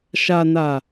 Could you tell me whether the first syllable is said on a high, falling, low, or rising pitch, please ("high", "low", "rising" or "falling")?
low